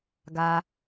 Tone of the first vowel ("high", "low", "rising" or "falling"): low